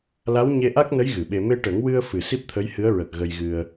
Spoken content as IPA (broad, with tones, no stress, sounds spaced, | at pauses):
l a˧˥ w ɲ e˧ ʔ a˦˥ k̚ n ə˧˥ j ɣ ɨ˨˩˨ ɓ e˧ m e˧ ʈ ə˨˩˦ ŋ w ɨ˧ ə̯ f ɨ˨˩ s i˦˥ p̚ t̪ʰ ə˧˥ j h ɨ˧˥ ə̯ ɹ ə˨˩ k̚ ɣ ə˧ j ɣ ɨ˧ ə̯